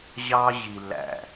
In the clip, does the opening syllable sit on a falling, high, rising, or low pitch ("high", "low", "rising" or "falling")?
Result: high